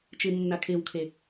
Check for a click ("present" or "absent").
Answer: absent